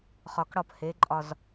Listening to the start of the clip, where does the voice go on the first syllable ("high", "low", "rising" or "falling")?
low